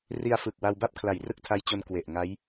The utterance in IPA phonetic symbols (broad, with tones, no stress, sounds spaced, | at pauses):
r i˧ a̯ f ɯ˨˩ k̚ w a˧ w b a˥˩ p̚ kʰ l a˩˦ j r ɯ˥˩ k̚ tʰ a˦˥ j t͡ɕ o˧ n k w e˨˩ ʔ ŋ a˦˥ j